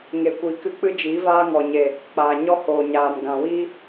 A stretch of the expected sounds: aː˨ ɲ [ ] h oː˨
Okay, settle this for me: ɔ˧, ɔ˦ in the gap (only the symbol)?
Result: ɔ˦